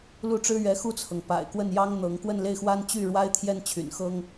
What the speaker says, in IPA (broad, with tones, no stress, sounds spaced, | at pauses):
l u˥˩ ʈ͡ʂ ɻ̩˥ ɥ ɛ˧˥ x u˥˩ t͡sʰ ɤ˩ ŋ p a̰˨˩ ɪ̯ k w ə˥˩ n j ɑ˥ ŋ n̪ ɤ˧˥ ŋ k w ə˥˧ n l e˥˩ ɪ̯ x w a˥ n t͡ɕ y˥˩ ɻ w a˥ ɪ̯ t̪ʰ j ɛ˥˩ n t͡ɕʰ y̰˨˩ n x ɤ˥ ŋ